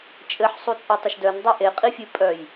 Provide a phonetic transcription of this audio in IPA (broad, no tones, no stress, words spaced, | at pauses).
t͡ʃʼɘħ sˤut͡sʼetˤɘʃdœn dˤeʔe qʼifʲɘ pʼœj